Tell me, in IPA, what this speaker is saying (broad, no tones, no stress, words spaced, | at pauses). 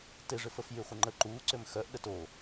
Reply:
tɪʐʏfəf jyχʷɪŋ͡ǃə ǃuǀʏm xœʔ ɗəto